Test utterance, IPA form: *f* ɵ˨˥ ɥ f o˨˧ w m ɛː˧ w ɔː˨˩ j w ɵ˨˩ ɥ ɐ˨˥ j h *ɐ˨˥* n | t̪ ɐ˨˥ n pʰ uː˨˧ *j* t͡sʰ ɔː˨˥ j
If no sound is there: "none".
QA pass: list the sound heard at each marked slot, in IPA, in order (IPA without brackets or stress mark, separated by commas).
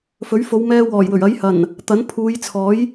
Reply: f, ɐ˨˩, j